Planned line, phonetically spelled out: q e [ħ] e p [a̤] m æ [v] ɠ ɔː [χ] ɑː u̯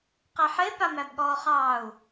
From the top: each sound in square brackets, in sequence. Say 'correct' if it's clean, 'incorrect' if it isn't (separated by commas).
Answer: correct, incorrect, incorrect, correct